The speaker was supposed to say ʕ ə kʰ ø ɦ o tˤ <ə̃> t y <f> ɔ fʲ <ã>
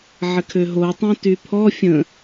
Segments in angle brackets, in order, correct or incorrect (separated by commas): incorrect, incorrect, incorrect